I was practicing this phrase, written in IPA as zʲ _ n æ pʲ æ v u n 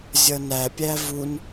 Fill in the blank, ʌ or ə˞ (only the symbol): ʌ